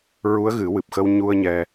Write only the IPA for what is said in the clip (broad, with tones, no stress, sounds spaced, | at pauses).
ɹ u˧˥ ə̯ ɣ ɨ˨˩˦ w ɨ˨˩ p̚ x ə˧ w ɲ u˧ ə̯ ɲ ɛ˧